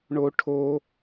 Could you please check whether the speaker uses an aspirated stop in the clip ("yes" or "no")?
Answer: yes